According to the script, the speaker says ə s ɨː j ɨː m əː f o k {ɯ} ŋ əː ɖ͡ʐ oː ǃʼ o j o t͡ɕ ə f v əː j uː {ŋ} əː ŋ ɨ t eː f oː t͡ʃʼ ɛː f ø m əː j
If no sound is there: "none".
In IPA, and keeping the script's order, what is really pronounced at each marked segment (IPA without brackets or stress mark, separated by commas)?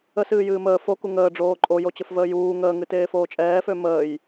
u, ŋ